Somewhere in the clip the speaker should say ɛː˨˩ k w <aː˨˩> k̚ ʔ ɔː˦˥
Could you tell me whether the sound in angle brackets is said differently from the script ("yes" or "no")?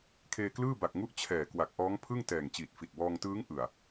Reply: yes